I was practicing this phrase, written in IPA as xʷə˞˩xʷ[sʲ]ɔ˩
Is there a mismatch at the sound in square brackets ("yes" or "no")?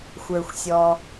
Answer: no